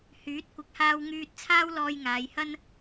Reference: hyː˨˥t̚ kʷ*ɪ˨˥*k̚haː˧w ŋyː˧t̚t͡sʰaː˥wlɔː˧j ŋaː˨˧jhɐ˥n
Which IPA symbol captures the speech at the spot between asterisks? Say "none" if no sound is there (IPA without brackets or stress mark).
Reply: ɪ˨